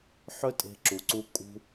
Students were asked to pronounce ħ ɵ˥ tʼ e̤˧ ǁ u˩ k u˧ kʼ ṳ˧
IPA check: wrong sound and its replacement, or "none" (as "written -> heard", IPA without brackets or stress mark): k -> ǀ